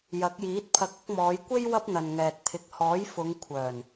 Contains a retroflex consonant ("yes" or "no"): no